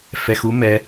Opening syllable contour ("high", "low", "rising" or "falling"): low